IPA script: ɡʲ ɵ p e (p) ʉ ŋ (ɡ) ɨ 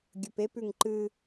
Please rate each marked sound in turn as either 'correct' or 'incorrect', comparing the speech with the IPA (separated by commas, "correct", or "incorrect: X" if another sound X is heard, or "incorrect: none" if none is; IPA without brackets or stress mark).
correct, incorrect: ǃ